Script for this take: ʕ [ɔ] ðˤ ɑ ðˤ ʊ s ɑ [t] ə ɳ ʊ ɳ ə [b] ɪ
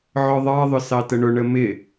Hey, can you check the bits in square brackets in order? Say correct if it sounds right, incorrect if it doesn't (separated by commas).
correct, correct, incorrect